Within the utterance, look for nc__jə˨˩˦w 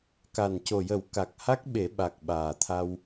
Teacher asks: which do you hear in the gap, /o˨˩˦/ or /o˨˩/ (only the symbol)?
o˨˩